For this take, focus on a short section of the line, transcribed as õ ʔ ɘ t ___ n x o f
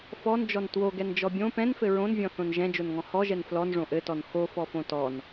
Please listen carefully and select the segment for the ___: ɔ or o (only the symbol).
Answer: ɔ